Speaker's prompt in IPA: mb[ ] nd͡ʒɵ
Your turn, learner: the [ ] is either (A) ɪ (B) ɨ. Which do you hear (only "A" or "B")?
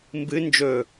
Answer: B